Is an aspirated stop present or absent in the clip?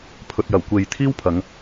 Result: present